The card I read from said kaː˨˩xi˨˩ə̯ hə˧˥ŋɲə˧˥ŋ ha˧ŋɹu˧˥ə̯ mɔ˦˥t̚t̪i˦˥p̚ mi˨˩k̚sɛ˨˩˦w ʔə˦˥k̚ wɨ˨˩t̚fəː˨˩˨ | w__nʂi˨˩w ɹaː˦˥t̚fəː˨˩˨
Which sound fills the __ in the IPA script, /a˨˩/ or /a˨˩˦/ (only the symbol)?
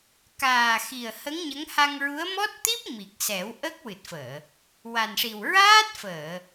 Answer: a˨˩